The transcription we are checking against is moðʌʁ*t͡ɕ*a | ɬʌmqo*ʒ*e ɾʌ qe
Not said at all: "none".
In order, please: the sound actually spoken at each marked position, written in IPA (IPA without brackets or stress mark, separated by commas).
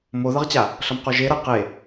t͡ɕ, ʒ